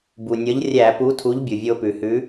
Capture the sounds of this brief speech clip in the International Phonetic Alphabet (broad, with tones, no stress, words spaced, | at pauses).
bu˩nʲʌ˨˥ʎ rʲæ˧˩˧pu˨˥tʰu˨˥ʎ bʲu˩vʲo˧pʉ˩hʉ˨˥